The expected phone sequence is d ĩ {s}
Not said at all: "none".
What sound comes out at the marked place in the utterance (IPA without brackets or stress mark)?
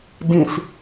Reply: s